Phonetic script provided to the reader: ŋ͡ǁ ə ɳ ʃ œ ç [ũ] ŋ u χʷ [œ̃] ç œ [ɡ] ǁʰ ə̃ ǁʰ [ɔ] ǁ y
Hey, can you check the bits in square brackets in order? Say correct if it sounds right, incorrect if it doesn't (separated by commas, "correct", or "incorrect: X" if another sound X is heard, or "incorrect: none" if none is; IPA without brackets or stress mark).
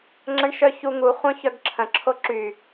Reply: incorrect: u, correct, correct, incorrect: o